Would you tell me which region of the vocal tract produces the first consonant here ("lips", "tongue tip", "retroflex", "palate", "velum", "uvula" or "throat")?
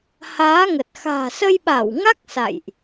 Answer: throat